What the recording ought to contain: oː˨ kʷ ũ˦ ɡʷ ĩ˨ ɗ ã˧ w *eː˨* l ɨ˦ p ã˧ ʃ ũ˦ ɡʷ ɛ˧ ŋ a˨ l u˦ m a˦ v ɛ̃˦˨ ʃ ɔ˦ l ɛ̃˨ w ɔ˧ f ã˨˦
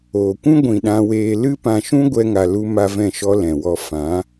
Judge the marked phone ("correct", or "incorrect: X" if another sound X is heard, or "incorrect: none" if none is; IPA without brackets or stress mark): incorrect: eː˧